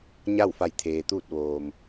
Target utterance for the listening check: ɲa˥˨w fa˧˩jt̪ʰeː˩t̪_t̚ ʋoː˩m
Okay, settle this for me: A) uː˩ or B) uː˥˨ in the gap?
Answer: B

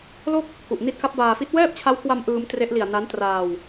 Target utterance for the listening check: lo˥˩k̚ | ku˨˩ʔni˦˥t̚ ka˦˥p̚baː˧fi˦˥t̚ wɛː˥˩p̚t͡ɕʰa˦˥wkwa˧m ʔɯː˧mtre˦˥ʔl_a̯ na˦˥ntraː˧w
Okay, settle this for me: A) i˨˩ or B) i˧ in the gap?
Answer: A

